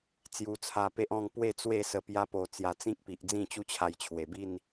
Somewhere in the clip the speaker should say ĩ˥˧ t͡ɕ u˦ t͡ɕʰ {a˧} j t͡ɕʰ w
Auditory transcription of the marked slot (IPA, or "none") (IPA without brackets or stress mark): a˧